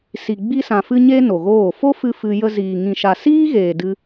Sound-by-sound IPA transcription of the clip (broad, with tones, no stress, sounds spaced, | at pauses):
s i˨ ɡ͡b i˧ s ã˨ f ɨ˧ ɲ e˧ n o˨ ɣ oː˦˨ f o˦ f ɨ˧ f ɨ˧ j ə˧ z iː˨ ŋ ĩ˨ ʃ a˨ s iː˦ ɣ eː˨ d ɨ˧